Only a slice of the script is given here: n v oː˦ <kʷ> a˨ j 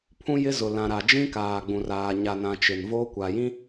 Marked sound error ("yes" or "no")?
no